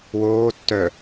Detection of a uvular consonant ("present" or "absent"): absent